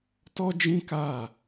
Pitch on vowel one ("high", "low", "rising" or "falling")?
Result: high